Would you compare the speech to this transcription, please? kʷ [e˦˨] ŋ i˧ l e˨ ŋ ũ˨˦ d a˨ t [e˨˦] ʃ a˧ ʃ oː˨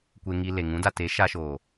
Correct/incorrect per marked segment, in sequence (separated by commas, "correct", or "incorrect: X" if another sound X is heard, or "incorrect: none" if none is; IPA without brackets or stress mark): incorrect: e˧, correct